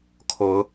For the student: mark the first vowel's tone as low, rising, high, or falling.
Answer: rising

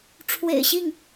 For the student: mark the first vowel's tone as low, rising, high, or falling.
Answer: low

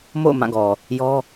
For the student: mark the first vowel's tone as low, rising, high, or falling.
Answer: falling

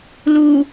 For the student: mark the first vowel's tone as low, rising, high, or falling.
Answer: low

